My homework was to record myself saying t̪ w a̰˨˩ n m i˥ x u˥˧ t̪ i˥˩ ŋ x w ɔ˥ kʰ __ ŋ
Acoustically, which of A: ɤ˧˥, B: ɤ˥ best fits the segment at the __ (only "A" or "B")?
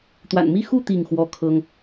B